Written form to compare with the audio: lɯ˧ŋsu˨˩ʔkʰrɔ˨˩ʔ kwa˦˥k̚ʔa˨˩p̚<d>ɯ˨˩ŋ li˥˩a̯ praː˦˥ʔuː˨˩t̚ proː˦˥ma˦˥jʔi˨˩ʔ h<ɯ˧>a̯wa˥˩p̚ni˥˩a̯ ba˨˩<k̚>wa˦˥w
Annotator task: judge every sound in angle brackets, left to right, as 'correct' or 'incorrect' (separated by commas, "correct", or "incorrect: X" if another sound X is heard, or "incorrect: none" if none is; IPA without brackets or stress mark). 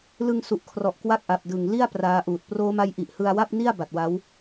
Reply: correct, correct, incorrect: t̚